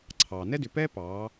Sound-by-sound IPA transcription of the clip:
ǀʰ ɑː˩ n ɛ˥ d ʏ˩˧ p ɛː˥ p ɑː˩˧

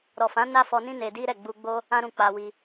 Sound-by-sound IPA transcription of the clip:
ɾ ɔ˨ f ã˨˦ n a˦ f ɔ˧ n ĩ˦ n e˧ d i˦ ɾ ɛ˦˨ ɡ͡b u˧ ɡ͡b o˦ | ã˦ ɾ ũ˧ k͡p a˧ w i˧

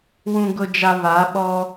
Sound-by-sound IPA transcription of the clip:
w ũ˨ ɡ ʊ˨ d͡ʒ a˨ β a˨˦ ɓ ɔ˦

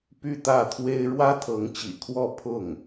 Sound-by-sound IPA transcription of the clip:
p y˥˧ t̪ ä˥˩ t̪ʰ w e˥ ɪ̯ ɻ w ä˥ t̪ʰ ɤ˧˥ ŋ t͡ɕ ḭ˨˩ kʰ w ɔ˥˧ pʰ ʊ˥˩ ŋ

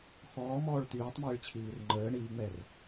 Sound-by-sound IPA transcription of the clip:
x ɔː m ɔː ɭ t̪ yː tˤ m iː ɭ t͡ɕʰ iː r ŋ͡ǃ əː ɳ iː ŋ͡m ɛ r

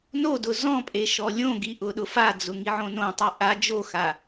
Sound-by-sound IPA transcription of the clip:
n o d ʊ z ɔ̃ pʼ e ʃ ɔ lʲ õ ɡ i ʔ ʊ ɗ ʊ f a d͡z ʊ ŋ i ʕ õ n õ tˤ i ʔ a d͡ʒ o x a

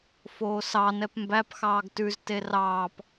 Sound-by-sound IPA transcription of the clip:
f oː s ɑ n ɛ p m b æ p x ɑː ɡ t ʉ z t e r ɑː p

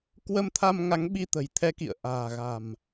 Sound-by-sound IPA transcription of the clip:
k w ə˧ m t̪ʰ a˧ m ŋ a˨˦ ŋ ɓ i˧ t̪ ə̤˨˩ j t̪ʰ ɛ˧ k ḭ˧˨ ə̯ ʔ a̤ː˨˩ ɣ a̤˨˩ m

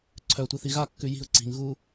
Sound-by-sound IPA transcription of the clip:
ǀʰ œ tʷ i θ i ɣ a kː ʉ j i̤ ʊ̯ ǀ i̤ ŋ ɣ u

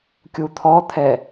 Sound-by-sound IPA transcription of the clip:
kʲ u t̪ʰ ɔ t̪ʰ ɛ

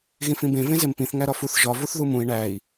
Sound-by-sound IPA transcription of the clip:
ɣ ĩ f ĩ b ẽ v ẽ z e m p ĩ θ ŋ æ ɾ ɒ f u θ ʒ ɒ v u θ ð u m ũ i̯ ɳ æ i̯

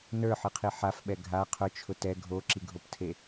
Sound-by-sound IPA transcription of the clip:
n ə˞ ħ ɯ qʰ i ħ a f ɓ ɛ ɡʱ a qʰ ʊ t͡ʃʰ ʊ t ɛ ɡʱ o ǁ i ɡʱ o p tʰ e

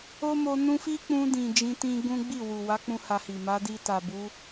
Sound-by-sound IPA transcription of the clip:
o˦ m o˧ n ũ˦ f i˦ k͡p ũ˧ d ĩ˨ d͡ʒ ĩ˧ t ĩ˦ ɡ ũ˦ ɡ͡b i˦˨ w u˨ w a˨˦ k͡p ũ˦ h a˧ h i˨ m a˨˦ d i˧ t a˨ b u˨˦

